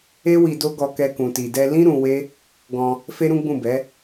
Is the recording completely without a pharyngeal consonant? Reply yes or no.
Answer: yes